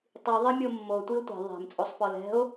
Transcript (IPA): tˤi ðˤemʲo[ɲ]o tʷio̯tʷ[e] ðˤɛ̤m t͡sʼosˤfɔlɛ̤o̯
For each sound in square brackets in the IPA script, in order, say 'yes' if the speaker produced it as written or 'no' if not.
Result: no, no

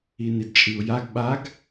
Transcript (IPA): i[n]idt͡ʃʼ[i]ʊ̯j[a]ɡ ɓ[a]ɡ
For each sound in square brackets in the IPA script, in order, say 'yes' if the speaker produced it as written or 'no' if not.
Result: yes, yes, yes, yes

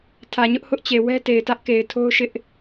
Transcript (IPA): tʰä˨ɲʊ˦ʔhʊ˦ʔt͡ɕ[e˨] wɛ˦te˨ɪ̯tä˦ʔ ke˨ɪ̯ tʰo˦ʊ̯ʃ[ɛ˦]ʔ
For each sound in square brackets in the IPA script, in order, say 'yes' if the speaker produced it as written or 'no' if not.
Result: yes, no

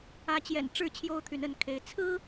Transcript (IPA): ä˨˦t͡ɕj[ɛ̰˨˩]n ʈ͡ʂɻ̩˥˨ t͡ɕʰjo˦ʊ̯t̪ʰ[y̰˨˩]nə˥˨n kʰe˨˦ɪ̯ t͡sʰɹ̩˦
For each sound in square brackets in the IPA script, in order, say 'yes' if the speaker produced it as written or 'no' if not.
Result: yes, no

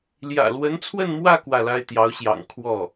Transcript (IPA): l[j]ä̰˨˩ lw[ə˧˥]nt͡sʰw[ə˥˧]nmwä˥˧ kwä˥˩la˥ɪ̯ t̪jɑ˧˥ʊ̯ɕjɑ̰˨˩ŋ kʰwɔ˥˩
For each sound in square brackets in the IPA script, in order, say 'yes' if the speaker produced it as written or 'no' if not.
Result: yes, yes, yes

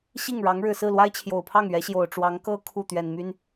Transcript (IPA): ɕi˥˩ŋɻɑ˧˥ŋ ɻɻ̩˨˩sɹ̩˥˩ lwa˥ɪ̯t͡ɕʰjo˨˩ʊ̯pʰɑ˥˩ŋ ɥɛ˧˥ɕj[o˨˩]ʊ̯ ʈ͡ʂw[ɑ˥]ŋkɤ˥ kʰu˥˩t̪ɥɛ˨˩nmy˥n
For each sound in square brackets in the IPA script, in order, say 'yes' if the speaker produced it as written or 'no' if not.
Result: yes, no

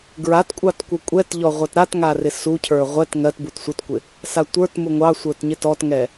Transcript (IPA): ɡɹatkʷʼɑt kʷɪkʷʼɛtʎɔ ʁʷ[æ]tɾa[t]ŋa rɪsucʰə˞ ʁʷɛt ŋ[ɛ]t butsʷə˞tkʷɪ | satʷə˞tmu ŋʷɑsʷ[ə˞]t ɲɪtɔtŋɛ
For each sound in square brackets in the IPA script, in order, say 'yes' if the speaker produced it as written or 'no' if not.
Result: no, yes, no, yes

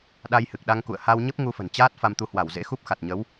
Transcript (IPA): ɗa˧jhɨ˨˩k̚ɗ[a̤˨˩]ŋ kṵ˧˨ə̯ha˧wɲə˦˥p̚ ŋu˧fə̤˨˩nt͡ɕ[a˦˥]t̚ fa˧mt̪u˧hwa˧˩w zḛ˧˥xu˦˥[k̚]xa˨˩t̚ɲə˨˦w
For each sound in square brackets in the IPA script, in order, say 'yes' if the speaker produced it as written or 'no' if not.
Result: no, no, no

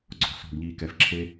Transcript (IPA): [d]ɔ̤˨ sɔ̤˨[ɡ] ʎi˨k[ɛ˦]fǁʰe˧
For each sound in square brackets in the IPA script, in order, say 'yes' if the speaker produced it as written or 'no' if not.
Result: no, yes, no

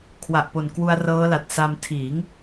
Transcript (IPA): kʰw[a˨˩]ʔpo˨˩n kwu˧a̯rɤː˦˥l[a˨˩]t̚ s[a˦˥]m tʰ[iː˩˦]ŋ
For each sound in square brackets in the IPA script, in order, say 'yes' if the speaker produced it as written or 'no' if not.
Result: yes, yes, no, yes

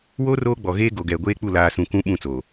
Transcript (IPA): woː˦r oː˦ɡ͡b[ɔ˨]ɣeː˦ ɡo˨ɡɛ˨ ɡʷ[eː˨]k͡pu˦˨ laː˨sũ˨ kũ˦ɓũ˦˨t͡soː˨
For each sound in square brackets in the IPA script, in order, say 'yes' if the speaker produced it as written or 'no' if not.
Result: yes, no

